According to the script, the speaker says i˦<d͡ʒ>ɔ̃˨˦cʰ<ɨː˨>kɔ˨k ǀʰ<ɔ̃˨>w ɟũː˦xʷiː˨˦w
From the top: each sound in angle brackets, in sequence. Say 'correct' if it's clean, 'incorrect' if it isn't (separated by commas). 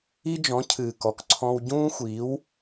correct, correct, incorrect